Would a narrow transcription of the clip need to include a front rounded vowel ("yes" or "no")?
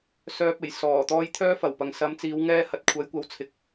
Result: yes